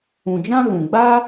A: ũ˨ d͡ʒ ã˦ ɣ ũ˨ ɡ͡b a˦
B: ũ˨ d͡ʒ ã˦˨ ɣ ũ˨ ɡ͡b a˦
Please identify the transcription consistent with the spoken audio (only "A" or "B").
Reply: A